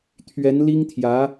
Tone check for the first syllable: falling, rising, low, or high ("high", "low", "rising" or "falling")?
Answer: rising